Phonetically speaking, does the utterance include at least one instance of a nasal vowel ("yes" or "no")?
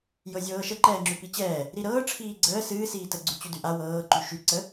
no